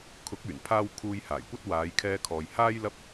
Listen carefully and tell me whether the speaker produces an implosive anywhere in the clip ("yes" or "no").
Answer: no